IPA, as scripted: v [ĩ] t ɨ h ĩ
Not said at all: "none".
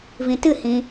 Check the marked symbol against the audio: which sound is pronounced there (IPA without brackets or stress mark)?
ĩ